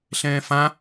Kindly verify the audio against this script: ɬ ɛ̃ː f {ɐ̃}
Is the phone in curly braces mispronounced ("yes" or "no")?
yes